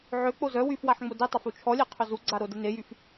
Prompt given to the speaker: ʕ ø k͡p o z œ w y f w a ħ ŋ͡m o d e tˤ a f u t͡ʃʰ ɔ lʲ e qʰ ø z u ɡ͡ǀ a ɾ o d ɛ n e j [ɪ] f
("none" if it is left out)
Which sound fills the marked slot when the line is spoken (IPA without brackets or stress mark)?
y